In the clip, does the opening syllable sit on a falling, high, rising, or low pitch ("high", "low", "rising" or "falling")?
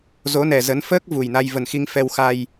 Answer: rising